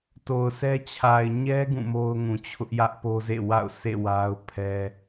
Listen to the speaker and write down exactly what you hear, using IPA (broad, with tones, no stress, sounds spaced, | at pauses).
t o˨ ʊ̯ sʰ ɛ˦ t͡ɕʰ a˨ ɪ̯ ɲ ɛ˦ ɡ ũ˦˨ m o˦ ʊ̯ ŋ ũ˨ t͡ɕʰ ʊ˦ ʔ j ä˦ ʔ p o˦ z ḛ˦˨ w a̰˦˨ ʊ̯ sʰ ḛ˦˨ w a˦ ʊ̯ pʰ ɛ˦